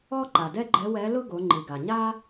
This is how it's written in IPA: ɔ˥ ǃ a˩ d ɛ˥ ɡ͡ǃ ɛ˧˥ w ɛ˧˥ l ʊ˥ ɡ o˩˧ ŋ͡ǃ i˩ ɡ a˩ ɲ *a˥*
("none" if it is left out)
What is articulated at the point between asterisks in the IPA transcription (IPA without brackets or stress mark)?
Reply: a˥